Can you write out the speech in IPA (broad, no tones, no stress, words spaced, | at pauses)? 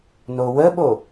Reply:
nowəɓo